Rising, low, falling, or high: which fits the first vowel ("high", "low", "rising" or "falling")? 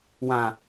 low